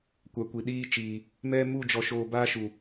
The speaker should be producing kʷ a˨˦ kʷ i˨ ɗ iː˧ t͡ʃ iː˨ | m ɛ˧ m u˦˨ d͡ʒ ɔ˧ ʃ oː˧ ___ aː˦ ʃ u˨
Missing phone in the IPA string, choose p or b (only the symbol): b